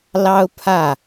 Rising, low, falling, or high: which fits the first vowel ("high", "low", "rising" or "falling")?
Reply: high